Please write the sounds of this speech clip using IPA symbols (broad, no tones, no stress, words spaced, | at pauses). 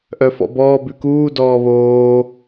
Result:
ʔœfɔ̰bɔː bʉkuː dɔːβoː